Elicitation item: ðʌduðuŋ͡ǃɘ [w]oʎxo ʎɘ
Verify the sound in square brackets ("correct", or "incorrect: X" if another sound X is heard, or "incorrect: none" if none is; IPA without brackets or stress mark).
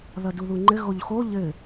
incorrect: ɣ